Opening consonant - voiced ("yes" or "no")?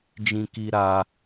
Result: yes